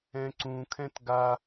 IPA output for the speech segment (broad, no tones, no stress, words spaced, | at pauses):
ɛ̃ǀũ kʰɛ̃tɡa